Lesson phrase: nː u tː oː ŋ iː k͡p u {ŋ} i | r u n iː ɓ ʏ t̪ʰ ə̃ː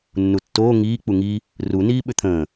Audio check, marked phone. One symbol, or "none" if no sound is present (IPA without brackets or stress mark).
ŋ